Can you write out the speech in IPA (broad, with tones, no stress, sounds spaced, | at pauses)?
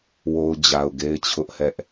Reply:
w o˨ ʊ̯ d͡ʑ a˨ ʊ̯ ɡ e˦ ɪ̯ t͡ɕʰ ʊ˦ ʔ h ɛ˦ ʔ